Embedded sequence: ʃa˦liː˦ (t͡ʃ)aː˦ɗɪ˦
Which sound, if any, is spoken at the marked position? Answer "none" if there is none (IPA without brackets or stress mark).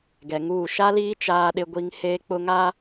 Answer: t͡ʃ